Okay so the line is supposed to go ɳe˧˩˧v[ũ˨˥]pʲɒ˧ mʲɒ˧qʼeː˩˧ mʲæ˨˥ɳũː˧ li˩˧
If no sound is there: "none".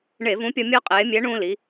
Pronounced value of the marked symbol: ũ˨˥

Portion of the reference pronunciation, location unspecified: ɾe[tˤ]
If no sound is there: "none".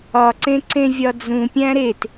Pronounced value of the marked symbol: t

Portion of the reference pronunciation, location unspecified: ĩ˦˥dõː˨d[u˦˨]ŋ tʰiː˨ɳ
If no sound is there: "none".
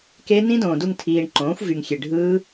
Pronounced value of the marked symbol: u˦˨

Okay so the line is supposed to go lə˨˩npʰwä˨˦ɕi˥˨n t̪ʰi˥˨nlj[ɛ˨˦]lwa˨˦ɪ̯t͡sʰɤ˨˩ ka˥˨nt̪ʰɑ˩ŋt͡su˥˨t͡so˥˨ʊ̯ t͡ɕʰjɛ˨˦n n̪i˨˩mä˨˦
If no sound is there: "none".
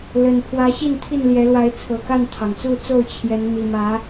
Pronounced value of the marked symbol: ɛ˨˦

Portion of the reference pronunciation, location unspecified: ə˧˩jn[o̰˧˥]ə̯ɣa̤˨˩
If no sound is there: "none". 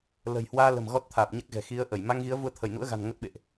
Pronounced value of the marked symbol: ṵ˧˥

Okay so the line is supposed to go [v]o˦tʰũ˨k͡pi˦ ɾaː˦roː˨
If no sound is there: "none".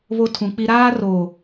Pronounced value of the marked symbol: β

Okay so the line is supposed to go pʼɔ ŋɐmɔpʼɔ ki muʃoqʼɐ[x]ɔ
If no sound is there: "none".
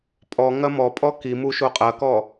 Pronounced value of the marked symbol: k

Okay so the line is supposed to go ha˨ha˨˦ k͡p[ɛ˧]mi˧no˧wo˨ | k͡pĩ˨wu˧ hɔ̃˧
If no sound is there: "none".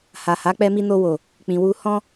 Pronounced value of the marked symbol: ɛ˧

